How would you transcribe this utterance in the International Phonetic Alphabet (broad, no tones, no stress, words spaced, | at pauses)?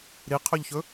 ɾiqʰɵʎçɵ